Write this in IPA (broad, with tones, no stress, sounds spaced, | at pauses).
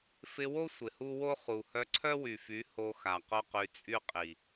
f ɪ˧ w o˦ sʷ ɪ˨ h u˦ w o˦ χ u˨ h œ˧ ǀʰ œ˦ w y˨ f y˨˦ h o˧ x a˨ q o˦ q y˧ t͡sʼ y˦ qʼ i˨